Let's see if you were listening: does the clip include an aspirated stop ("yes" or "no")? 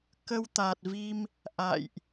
no